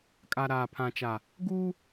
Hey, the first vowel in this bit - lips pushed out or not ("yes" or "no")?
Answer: no